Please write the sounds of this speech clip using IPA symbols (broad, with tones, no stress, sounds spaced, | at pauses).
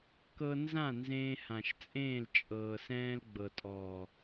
k ɤ˧ n z ã˦˨ n z ẽː˧ h ã˨ ʃ t͡sʼ ẽː˦˨ l t͡ʃʼ ɤː˨ s ɛ̃ː˧ l ɡ͡b ɤ˨ tʼ ɔː˨